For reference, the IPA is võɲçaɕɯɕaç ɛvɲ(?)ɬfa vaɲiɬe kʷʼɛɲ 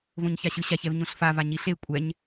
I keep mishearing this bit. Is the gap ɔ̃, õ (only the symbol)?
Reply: õ